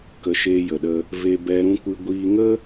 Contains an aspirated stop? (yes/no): no